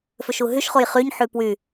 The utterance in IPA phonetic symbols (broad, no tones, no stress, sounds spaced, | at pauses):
f ø ʃ u ɦ y ʃ χ o j χ y ɲ ħ y p w y